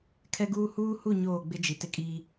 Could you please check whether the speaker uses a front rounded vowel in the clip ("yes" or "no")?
no